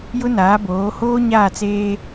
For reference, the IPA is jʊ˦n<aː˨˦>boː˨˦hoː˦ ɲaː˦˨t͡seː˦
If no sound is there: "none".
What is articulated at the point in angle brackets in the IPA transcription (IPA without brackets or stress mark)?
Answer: aː˨˦